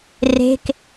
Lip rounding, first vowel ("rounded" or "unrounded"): unrounded